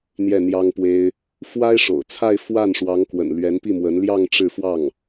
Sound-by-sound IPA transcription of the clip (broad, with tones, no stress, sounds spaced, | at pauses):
n̪ j ɛ˥˩ n̪ j ɑ˥ ŋ p w e˥ ɪ̯ | f w a˥ ɪ̯ ʂ o̰˨˩ ʊ̯ t͡sʰ a˥˧ ɪ̯ f w a˥˩ n ʂ w ɑ˧˥ ŋ k w ə̰˨˩ n l ɥ ɛ˧˥ n p i˥˩ m w ə˧˥ n l j ɑ˥˧ ŋ ʈ͡ʂ ɻ̩˥˧ f w ɑ˥˩ ŋ